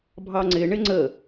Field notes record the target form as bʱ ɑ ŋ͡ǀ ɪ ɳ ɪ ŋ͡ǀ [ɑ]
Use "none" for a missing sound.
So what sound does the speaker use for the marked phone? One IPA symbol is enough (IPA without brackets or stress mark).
ə